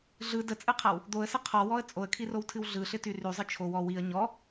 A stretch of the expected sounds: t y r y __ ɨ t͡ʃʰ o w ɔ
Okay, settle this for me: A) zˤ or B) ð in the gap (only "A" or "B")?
A